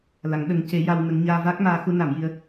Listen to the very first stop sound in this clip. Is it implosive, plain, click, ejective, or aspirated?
implosive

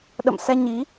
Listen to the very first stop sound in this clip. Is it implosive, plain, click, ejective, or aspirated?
implosive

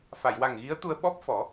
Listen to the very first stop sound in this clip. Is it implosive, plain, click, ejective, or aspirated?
plain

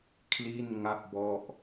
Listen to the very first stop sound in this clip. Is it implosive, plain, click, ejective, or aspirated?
aspirated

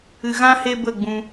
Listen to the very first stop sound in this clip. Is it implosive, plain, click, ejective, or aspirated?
plain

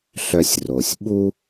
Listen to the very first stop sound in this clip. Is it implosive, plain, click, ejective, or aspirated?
implosive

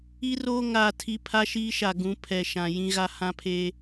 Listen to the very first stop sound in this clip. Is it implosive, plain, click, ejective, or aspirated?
aspirated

